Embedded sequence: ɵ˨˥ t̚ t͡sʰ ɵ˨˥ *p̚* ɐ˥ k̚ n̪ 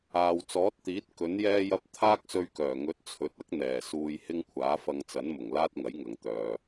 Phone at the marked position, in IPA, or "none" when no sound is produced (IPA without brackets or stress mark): t̚